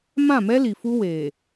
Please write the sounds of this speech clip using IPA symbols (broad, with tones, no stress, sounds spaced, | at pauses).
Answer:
m ã˦˨ m ɛ˦ l i˨ f u˦ w eː˨